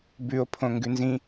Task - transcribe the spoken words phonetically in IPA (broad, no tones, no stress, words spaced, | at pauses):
bʉo̯ pʰõŋɡʉnzĩ